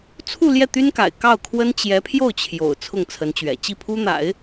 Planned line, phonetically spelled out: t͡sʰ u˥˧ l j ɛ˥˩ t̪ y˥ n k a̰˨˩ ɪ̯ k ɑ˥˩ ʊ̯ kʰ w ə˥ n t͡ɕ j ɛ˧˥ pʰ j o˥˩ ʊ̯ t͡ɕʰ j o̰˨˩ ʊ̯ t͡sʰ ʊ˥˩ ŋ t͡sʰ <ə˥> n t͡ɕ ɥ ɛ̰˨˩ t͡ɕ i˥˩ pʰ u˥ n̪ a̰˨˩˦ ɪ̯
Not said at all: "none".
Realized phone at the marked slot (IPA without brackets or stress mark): ə˧˥